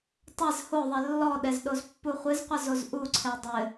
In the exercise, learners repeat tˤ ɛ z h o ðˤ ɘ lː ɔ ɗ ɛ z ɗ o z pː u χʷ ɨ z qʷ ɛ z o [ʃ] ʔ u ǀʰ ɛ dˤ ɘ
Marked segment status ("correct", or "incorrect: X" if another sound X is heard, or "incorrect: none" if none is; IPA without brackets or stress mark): incorrect: z